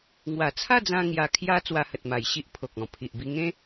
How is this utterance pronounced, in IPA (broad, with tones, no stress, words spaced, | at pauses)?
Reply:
ŋwa˨˩t͡sʰa˥˧d͡zã˧ ŋja˧kʰja˦ t͡swa˧hə˨t̚ma˨˩jɕi˦ʔ pʰo˨k̚ɔ̃˨˩ pʰi˨ʔbi˧ ŋẽ˦